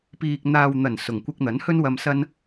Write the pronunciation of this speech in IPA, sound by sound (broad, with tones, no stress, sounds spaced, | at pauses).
p iː˨ k̚ n̪ aː˨ w n̪ ɐ˨˩ n s ʊ˨˩ ŋ kʷ ɪ˧ k̚ n̪ ɐ˨˥ n h ɵ˥ n w ɐ˧ m s ɐ˥ n